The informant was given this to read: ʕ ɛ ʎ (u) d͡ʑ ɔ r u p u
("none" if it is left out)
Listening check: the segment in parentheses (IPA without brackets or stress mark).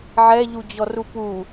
u